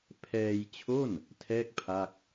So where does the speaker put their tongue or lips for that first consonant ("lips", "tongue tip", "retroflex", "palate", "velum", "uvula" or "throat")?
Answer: lips